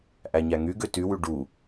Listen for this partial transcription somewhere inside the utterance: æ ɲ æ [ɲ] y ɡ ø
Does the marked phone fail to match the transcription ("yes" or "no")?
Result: yes